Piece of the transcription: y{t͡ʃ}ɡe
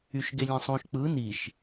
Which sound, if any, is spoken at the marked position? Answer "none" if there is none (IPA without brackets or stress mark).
ʃ